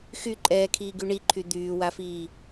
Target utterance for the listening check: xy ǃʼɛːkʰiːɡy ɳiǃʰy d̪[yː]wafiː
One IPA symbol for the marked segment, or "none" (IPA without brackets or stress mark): yː